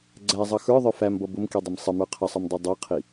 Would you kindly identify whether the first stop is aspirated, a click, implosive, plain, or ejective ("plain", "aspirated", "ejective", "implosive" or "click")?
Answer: click